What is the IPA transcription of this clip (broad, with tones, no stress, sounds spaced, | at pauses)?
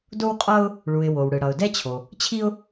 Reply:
d o˥ w qʼ ʌ˥ ʊ̯ | ɭ u˩ ɪ̯ w o˩ w ɽ ɯ˩ ɽ ʌ˩ ʊ̯ d ɛ˥ t͡ɕʰ o˩ | t͡ɕʰ i˥ ʊ̯